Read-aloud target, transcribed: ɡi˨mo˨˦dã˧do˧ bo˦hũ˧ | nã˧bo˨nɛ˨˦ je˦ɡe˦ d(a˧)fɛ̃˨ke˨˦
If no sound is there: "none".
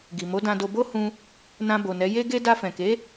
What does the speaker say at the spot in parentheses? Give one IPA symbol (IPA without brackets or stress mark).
a˧